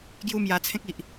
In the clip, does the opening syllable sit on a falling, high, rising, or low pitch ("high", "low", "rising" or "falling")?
high